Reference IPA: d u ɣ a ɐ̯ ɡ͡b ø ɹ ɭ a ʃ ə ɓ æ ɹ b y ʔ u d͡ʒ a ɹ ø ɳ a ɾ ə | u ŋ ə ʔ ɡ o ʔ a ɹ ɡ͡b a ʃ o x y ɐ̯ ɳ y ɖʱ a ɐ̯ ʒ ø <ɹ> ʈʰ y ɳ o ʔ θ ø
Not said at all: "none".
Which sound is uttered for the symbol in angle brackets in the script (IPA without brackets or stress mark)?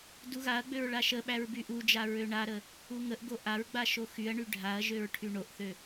ɹ